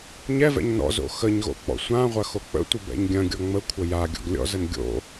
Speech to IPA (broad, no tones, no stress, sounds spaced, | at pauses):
ɲ ɛ v ɛ̰ ɲ n ɔ̰ z o̰ x ə ɲ ɣ o̰ k͡p ɔ̰ sʷ ã ʁʷ ɐ x o k͡p ə̰ tʷ ə b ɛ̰ ɲ ɡʲ ɐ̃ ɡʲ ɔ ŋ͡m ə kʷʰ ə j a ɡʲ ɔ̰ ɡ lʲ ɔ̰ z ə n ɡʲ o̰